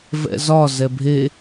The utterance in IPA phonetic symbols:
vɛ̰zɒ zɛbʱe

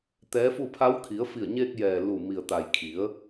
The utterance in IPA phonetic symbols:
t̪ɛː˧˥fu˥˨ pʰa˧˥w kʰi˩˧ə̯fi˧˩ə̯ɲeː˧k̚jɛː˩ lu˧˩ mi˩ə̯t̪a˩j kʰi˩˧ə̯

